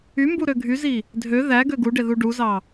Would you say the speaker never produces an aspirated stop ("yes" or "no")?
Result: yes